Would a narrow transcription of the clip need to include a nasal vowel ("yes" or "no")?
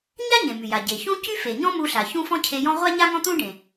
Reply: yes